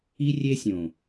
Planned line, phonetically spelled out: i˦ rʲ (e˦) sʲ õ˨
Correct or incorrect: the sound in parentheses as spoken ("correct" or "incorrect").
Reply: correct